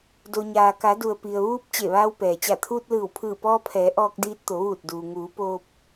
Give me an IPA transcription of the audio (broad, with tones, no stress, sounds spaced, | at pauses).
d o˩ ɲ aː˩ k a˩˧ d u˩ ə̯ p i˩ ə̯ ʋ uː˧ p̚ t͡ɕ e˧˩ ʋ aː˧ w p ɛː˩ t͡ɕ a˧˩ t̪ʰ uː˧ t̚ l ɯː˧˩ w pʰ ɯː˧˩ p ɔː˧ pʰ ɛː˩˧ ʔ ɔː˧ k̚ d iː˧ t̚ t̪ o˩˧ ʋ uː˧˩ t̚ d uː˩ ŋ uː˩˧ p oː˧ p̚